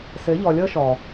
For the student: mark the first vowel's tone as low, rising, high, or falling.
rising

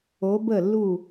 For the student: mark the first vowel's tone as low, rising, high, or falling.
rising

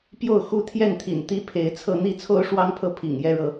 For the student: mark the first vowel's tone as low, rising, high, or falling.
falling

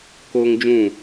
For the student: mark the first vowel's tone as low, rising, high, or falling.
high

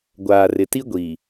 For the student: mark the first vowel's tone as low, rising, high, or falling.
low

